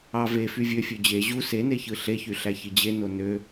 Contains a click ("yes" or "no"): no